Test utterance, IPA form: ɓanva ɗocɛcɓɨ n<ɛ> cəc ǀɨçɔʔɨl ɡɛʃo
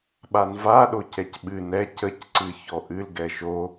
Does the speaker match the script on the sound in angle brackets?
yes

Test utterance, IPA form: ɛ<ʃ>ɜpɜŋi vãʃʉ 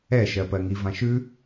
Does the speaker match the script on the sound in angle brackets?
yes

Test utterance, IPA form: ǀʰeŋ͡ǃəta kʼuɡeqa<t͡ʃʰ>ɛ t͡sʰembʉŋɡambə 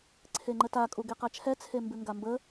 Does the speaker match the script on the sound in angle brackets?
yes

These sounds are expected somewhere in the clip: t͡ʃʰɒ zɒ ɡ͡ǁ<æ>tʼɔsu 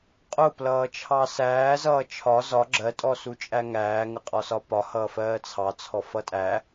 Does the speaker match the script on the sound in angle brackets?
no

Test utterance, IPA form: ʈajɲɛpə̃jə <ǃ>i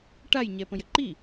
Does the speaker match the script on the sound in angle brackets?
yes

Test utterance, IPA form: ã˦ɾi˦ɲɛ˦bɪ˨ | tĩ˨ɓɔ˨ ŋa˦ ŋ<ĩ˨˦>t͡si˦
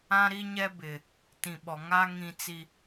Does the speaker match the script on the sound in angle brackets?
no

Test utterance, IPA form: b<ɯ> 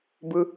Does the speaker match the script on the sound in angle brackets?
yes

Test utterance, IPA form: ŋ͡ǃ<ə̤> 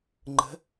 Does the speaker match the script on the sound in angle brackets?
yes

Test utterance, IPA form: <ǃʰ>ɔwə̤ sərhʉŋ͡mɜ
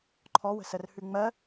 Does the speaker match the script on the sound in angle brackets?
yes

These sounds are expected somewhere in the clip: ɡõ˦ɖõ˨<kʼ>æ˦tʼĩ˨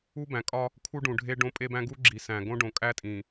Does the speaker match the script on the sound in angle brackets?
yes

